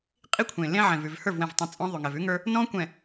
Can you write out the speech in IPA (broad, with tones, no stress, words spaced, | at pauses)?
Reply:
qʼi˦kʷʰẽ˨lẽ˦ ʕɛ̃˨vʉ˨v hə˞˦˨vwɛ̃˨vtˤẽ˨ t͡sʼɔ̃˦ðˤʉ˨ŋɛ˨v ʉ˦ŋə˞˦ | nɔ̃˦ kʷɛ̃˨